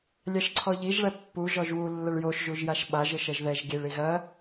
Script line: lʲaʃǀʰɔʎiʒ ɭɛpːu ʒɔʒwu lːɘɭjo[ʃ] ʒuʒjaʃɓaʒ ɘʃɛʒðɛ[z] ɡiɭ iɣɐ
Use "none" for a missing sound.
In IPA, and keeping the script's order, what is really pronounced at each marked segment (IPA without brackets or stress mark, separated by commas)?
ʃ, ʒ